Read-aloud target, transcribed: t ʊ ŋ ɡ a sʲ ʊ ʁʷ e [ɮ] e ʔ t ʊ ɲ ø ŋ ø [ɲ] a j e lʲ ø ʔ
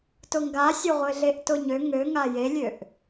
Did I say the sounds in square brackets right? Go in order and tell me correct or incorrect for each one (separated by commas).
correct, incorrect